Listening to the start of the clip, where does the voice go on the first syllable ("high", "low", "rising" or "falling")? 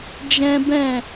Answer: high